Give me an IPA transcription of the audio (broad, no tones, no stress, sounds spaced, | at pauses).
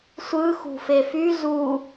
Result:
sʷ ɯ x ṳ f e f y z u